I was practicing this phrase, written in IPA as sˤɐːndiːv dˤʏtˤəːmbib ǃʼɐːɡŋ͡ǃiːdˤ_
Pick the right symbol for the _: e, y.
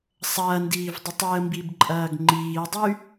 y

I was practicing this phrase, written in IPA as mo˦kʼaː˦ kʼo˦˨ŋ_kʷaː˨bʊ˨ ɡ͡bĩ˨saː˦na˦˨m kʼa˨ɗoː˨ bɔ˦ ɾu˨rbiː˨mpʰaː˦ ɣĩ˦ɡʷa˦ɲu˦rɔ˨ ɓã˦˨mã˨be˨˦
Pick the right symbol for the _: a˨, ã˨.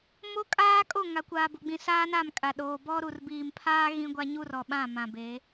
a˨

